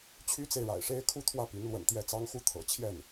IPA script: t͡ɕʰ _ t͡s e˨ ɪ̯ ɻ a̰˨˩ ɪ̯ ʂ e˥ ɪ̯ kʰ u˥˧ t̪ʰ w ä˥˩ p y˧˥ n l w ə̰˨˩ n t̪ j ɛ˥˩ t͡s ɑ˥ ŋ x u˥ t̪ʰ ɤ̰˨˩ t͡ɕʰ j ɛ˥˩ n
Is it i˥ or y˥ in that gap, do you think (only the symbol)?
y˥